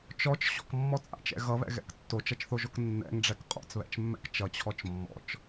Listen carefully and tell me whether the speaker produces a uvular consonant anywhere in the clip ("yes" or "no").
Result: yes